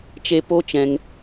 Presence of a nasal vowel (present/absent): present